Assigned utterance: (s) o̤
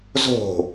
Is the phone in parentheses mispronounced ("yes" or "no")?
yes